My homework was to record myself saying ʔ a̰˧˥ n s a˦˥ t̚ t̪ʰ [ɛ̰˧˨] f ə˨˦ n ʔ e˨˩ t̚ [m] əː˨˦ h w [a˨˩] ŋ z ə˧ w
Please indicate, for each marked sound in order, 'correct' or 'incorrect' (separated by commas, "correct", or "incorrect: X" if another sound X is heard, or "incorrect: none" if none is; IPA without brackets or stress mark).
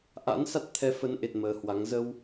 incorrect: ɛ˨˦, correct, incorrect: a˨˦